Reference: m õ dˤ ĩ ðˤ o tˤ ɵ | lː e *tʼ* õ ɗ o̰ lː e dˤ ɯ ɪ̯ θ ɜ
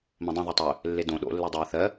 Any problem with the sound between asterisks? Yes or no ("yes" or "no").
yes